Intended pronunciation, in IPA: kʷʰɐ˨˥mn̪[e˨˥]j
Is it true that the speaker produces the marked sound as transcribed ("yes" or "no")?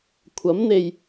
no